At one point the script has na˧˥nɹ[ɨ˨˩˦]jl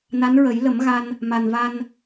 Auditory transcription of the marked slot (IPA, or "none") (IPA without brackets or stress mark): ə˨˩˦